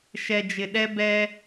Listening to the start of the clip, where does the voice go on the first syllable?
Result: low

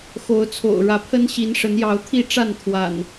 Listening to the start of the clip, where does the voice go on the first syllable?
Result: rising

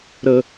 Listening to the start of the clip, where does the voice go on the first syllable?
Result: low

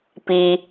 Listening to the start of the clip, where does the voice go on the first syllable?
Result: low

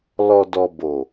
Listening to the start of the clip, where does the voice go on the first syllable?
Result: low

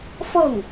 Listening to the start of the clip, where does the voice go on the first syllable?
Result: falling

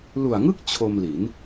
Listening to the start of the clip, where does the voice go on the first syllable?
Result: low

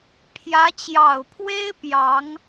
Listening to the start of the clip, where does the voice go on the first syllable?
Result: rising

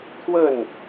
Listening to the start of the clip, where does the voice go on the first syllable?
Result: falling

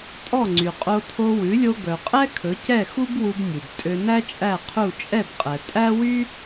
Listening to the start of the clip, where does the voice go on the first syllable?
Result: falling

